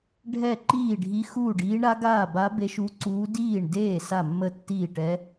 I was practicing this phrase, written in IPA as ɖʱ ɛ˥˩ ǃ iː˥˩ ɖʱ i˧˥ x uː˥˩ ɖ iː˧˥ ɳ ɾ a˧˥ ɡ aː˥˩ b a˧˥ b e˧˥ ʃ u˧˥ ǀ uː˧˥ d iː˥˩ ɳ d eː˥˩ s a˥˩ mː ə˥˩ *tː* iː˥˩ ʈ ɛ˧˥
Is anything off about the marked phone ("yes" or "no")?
no